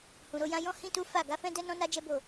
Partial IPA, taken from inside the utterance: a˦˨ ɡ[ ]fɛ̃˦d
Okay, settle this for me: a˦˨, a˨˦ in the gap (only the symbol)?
a˨˦